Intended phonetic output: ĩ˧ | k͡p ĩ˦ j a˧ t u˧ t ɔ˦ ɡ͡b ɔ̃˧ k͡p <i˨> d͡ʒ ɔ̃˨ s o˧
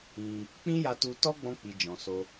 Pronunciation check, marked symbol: correct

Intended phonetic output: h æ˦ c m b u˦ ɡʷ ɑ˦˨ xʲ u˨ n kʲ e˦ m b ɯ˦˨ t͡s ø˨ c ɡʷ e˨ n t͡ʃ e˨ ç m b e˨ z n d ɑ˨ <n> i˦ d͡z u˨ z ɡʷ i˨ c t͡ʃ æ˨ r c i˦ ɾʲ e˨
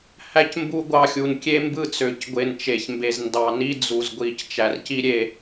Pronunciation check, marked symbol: correct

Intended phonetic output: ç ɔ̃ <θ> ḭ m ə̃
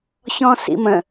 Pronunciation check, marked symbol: incorrect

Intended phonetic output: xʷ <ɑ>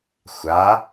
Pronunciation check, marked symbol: incorrect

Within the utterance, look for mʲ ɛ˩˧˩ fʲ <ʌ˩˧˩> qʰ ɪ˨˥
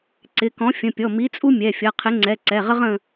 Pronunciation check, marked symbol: correct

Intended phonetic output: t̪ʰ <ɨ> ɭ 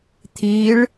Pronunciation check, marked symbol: incorrect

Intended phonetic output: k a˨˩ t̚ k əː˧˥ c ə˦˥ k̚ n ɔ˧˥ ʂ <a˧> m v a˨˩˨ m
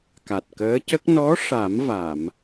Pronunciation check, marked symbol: incorrect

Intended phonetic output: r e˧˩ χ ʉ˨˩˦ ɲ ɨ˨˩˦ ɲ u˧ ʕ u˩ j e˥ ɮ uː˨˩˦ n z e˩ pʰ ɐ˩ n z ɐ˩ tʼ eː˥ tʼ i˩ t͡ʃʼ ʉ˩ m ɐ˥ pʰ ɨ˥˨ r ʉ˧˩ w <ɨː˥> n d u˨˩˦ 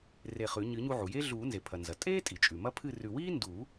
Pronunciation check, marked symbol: incorrect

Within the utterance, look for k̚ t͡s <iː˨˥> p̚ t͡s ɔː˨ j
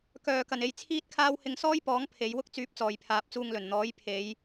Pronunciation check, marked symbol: incorrect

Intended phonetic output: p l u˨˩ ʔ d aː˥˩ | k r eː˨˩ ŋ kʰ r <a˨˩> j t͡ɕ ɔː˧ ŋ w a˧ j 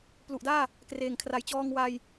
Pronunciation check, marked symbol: correct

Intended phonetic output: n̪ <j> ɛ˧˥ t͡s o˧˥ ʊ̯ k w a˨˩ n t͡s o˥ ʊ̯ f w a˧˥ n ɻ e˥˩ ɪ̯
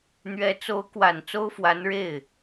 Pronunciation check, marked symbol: incorrect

